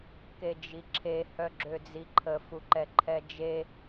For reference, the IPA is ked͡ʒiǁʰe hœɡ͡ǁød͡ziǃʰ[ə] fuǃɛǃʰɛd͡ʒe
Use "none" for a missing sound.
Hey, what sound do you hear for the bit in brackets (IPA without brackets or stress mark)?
ə